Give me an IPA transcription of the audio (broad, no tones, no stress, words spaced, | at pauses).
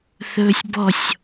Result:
θɵːsʲbɔsʲ